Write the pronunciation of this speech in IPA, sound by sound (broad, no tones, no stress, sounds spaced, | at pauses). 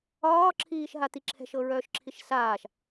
ɒː ǁʰ iː ʃ ɦ a t̪ i ǁʰ ɛ̤ ʃ ɤ ɹ œː ʃ ǁʰ i ʃ s aː ʃ